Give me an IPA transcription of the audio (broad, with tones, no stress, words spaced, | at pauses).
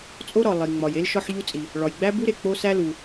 t͡sʼo˥ɾɒ˩ lˠi˩ŋ͡mɒ˩je˥l ʃɒ˥ħʎu˥t͡sʼi˩ | ɭɒ˩jɡ͡bæ˥bu˥ɾe˩ k͡po˥sæ˥lu˩